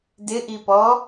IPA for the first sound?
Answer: d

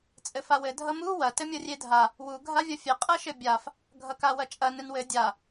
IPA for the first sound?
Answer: t͡sʼ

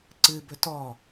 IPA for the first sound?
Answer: ǀ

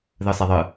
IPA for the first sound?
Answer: ð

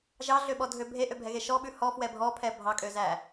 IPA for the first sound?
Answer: ʒ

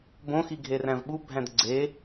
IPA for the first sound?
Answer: b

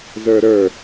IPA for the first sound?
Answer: z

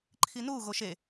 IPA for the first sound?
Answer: ǃʰ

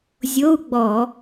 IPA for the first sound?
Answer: zʲ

